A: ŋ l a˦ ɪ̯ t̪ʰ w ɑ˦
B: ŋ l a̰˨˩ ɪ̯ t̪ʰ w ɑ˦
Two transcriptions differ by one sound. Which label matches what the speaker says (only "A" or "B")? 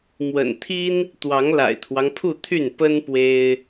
B